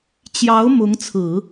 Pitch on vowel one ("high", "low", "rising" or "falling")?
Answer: rising